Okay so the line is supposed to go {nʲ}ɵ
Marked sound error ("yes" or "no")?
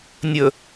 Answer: no